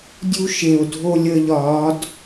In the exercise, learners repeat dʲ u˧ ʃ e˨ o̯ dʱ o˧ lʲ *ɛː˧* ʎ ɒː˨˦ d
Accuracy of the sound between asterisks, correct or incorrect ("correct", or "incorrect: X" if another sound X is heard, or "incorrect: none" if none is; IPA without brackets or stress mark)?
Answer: incorrect: əː˧